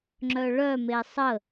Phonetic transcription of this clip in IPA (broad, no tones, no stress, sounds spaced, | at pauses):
ŋ͡ǁ œ ɭ œ m e sˤ ə